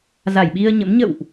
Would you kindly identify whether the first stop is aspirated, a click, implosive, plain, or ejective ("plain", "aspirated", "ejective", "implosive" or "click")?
implosive